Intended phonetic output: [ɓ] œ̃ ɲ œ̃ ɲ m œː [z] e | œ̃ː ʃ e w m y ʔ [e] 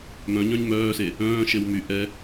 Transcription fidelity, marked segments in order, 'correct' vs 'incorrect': incorrect, incorrect, incorrect

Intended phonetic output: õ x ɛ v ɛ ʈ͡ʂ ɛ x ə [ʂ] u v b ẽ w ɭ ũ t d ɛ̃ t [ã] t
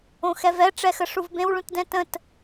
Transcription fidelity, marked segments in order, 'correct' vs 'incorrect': correct, incorrect

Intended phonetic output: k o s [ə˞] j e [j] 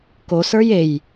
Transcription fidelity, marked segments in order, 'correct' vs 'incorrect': correct, correct

